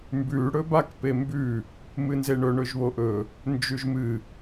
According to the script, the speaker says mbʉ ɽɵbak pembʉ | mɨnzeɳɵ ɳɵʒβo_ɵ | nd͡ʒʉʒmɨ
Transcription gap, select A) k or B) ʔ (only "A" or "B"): B